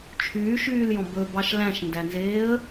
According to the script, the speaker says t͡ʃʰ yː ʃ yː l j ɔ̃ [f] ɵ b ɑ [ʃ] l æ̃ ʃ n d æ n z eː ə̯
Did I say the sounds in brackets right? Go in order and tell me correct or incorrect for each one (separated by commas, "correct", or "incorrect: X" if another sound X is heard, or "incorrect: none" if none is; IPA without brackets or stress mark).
incorrect: b, correct